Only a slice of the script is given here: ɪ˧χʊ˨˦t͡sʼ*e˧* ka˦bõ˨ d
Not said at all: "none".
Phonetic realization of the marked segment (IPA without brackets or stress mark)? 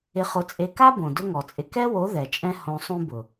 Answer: e˧